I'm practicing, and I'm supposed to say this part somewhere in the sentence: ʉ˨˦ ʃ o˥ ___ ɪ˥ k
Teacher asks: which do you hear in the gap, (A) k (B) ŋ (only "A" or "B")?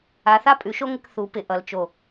B